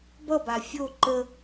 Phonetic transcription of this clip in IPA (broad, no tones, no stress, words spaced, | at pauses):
bʌba fʲo ǃə